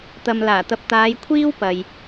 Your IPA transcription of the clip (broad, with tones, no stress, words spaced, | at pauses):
t̪ɐ˨m laː˨˩t̪ɐ˨p̚ t̪aː˨˧jkʷʰiː˥w pɐ˨j